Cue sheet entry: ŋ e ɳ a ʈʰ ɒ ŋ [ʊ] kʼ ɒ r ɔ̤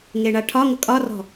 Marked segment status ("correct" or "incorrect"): correct